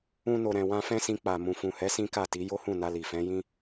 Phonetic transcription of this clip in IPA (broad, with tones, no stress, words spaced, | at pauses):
ũ˧no˨ɾɛ̃˨wã˧ fɛ̃˦sĩ˧k͡pa˨ mũ˨fũ˨hɛ˨˦ sĩ˦ka˦˨ti˨˦ jo˦hũ˦˨na˧ li˨ fɛ̃˨˦jĩ˦